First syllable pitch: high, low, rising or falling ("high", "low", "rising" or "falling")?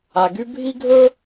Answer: low